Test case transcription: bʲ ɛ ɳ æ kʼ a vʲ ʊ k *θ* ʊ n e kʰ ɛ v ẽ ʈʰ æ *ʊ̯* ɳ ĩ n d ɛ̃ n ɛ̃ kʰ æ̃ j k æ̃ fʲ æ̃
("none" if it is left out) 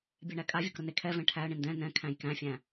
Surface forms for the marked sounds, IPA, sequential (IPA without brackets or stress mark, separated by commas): ɾ, ə̯